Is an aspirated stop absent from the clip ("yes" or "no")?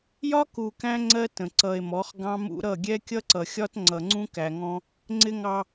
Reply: yes